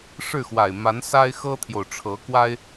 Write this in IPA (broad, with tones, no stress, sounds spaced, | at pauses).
ʂ ɻ̩˥˩ x w a˨˩ ɪ̯ m a˧˥ n s a˥ ɪ̯ x ɤ˥ t̪ʰ j o˨ ʊ̯ ʈ͡ʂʰ ɤ˧˥ k w a˥ ɪ̯